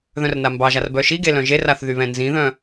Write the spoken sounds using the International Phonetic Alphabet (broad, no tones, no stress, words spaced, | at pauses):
ðœ̃rnambɑʒar bœʃiɡe lœ̃ʒeraθ ðyβɛ̃nzĩðœ̃